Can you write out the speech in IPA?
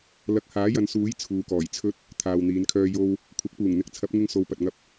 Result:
l ɐ˨˥ k̚ h aː˨˥ j ɐ˨˧ n s uː˨˥ j t͡sʰ uː˨ k ɔː˨˩ j t͡sʰ ɵ˧ t̚ | t̪ʰ aː˨ w n̪ iː˨˧ n kʰ œː˧ j o˧ w | kʷʰ ɐ˨˥ k̚ p uː˨˩ ŋ n̪ ɪ˨˥ k̚ t͡sʰ ɐ˨˥ p̚ ŋ ɪ˧ ŋ s o˨ w p ɐ˨ t̚ ŋ ɐ˧ p̚

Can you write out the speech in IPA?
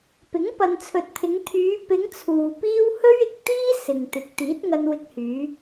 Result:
p ɪ˨˥ ŋ p ɐ˨ n t͡sʰ ɵ˨ t̚ t̪ʰ ɪ˨˧ ŋ t̪ʰ yː˨˧ p ɪ˨˧ ŋ t͡sʰ uː˨ p iː˥ w h ɵ˥ ɥ ɪ˨ k̚ t̪ iː˥ s ɪ˨ ŋ t̪ ɪ˨ k̚ t̪ iː˨˥ t̚ ŋ ɐ˧ n w ɪ˧ k̚ h yː˨˧

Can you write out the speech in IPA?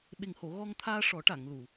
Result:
ɓ e˨˩ ŋ h o˨˩˨ ɣ ɔ˧ ŋ t̪ʰ aː˧ ʂ ɔ˨˩˦ ʈ a˨˩˨ ŋ l u˨˩˨

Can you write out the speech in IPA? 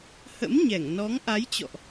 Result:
h ə̰˧˥ m ɲ ɛ˧˩ ŋ n ɔ˨˦ ŋ ʔ a˨˦ j t͡ɕ ɔ̰˧˨ ʔ

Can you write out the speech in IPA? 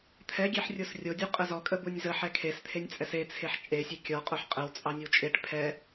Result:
t̪ʰ ɛ ɡʲ e ħ rʲ o s rʲ o dʲ u qʼ ə z ɔ kʼ ə b u nʲ z ə ħ ɛ kʰ e s t̪ʰ e nʲ t͡sʼ ɛ s e t͡sʰ e ħ t͡ʃʼ e sʲ ɛ kʲ ɔ qʼ o ħ qʼ ə w t͡sʼ ɑ nʲ ə w t͡ʃʼ e ʈ pʰ ɛ

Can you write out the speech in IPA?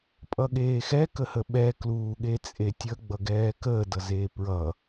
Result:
pʼ ʌ ɠ eː x ɛ k ə h ə ɓ ɛ k l uː ɠ e t͡sʼ e tʲ ə ɡ͡b ʌ ɡ ɛː k əː d ʌ z eː p ɹ ʌ

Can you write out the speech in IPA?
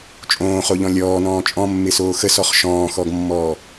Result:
t͡ʃʼ õː χ o ʎ ɔ̃ lʲ ɔː n ɔ̃ː t͡ʃʼ ɔ̃ mː ɪ s oː x ə s ɔ χ ʃ ɔ̃ː x ɔ ɡ mː ɔː

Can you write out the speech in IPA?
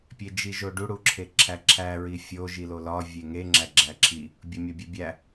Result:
pʲ e d͡ʒ i ʒ o ɖ u ɽ u ǁʰ e ǁʰ æ ǁʰ æ ɹ i fʲ o ʒ i l o l ɒ vʲ e ŋ e ŋ͡ǁ æ ɡ͡ǁ æ ǁʰ i | bʲ o mʲ ɒ bʲ e bʲ æ

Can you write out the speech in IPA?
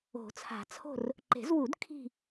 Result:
o̤˨˩˦ t͡sʰ a̤˨˩˦ t͡sʰ o̤˦˨ r | ǃ e̤˨˩˦ z w u˨˩˦ d kʰ i̤˦˨

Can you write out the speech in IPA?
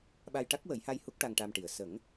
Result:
ɓ a˧ j ʈ a˦˥ k̚ w ə˨˩˦ j h a˧ j h u˦˥ k̚ ʈ a˧ ŋ ʈ a˧ m ʈ i˨˩ ə̯ s ə˨˩˦ ŋ

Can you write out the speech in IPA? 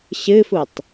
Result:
ɕ ɨ f u tˤ

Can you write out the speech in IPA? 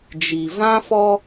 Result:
d͡ʒ i˨ v ã˦ f ɔ˦

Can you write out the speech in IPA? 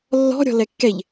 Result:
lː ɔ̤ ɾʲ ɔ̤ l ɛ kː ɛ ʎ

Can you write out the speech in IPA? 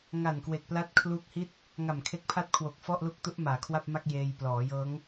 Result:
ŋ a˨˩ n k w e˨˩ k̚ p l a˦˥ t̚ kʰ l u˦˥ k̚ h i˥˩ t̚ | ŋ a˨˩ m kʰ e˦˥ k̚ pʰ a˥˩ t̚ kʰ w o˨˩ k̚ f ɔ˥˩ ʔ l u˦˥ k̚ t u˦˥ ʔ m aː˩˦ kʰ w a˥˩ p̚ m a˥˩ k̚ j eː˧ j p l ɔː˩˦ j ɤː˦˥ ŋ

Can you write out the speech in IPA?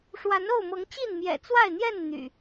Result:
ʂ w a˨˦ n o˥˨ ʊ̯ m ɤ˨˦ ŋ t͡ɕ i˥˨ n m j ɛ̰˨˩ t͡s w a˥˨ ɪ̯ n̪ j ɛ˥˨ n n̪ y̰˨˩

